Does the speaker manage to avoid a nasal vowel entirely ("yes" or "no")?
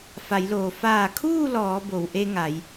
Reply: yes